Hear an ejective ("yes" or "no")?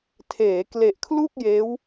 no